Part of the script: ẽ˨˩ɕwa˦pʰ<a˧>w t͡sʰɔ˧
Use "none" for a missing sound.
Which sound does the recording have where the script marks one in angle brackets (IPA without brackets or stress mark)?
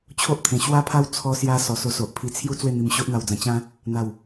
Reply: a˦